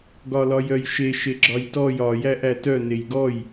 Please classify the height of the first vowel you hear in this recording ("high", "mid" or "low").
low